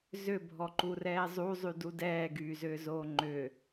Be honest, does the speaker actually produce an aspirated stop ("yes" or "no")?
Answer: no